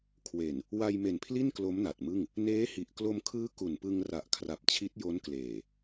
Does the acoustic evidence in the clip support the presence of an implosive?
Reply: no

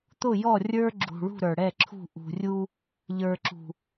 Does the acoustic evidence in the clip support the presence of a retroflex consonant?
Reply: yes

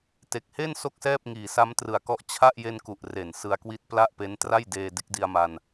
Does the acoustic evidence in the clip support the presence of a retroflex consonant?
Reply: no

